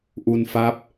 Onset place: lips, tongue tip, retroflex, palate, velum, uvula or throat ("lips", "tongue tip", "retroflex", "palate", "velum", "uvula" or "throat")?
throat